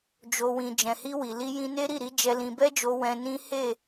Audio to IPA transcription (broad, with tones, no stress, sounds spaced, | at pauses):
d͡ʒ o˧ w ĩ˧ d͡ʒ ɛ̃˨ h i˧ w i˨ l i˧ j ĩ˧ n e˦ ɾ i˦˨ ɾ i˨˦ d͡ʒ ɛ˧ l ĩ˧ b ɛ˦ d͡ʒ o˧ w ɛ̃˧ n ĩ˦ h e˦˨